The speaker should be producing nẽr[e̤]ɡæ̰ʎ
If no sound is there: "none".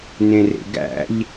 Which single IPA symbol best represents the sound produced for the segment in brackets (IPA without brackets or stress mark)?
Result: ḛ